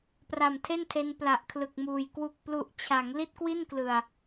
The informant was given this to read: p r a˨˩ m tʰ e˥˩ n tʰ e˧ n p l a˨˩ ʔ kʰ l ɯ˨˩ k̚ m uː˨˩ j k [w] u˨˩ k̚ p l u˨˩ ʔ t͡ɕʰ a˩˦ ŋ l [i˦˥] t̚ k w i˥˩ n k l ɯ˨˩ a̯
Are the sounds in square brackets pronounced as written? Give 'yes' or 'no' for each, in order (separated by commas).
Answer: yes, no